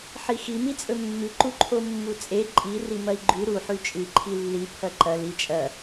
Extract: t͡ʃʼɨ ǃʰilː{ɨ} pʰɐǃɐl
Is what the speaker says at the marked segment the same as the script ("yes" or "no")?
no